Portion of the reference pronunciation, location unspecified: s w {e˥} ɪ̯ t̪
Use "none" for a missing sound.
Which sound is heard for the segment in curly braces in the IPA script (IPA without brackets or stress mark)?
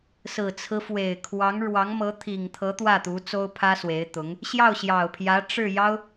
e˧˥